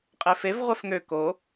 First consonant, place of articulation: uvular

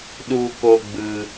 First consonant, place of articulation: alveolar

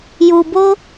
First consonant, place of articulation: palatal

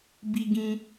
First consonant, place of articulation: labial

